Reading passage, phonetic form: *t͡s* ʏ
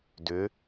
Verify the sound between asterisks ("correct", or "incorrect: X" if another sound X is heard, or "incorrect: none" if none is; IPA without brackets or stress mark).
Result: incorrect: d